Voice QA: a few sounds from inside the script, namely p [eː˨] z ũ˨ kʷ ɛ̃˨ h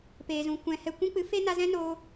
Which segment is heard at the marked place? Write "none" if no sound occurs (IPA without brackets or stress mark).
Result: eː˨